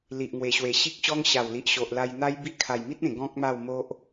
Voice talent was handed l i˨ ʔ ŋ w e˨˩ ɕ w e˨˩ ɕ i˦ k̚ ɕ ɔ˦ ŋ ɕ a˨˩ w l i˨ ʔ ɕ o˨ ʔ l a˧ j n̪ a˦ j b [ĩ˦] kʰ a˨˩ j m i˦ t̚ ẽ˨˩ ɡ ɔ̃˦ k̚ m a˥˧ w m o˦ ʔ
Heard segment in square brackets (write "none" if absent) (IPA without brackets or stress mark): i˦